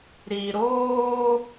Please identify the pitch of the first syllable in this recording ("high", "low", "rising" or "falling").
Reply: low